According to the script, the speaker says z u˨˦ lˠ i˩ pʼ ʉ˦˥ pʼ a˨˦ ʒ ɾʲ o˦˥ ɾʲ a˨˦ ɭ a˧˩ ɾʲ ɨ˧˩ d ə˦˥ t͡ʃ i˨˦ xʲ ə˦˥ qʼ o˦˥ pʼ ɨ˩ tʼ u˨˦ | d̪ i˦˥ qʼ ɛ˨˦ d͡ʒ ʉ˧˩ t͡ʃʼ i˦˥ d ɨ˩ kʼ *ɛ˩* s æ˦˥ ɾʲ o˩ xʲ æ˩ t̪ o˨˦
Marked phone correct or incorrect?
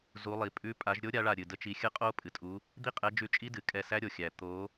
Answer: incorrect